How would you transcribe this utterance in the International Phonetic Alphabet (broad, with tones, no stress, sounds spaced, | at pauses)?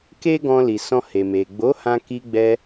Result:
k e˦ ɡ ɔ̃˧ l i˨ s ɔ̃˧ h e˨ m e˨ ɡ͡b o˨˦ h ã˧ k i˧ ɡ͡b ɛ˧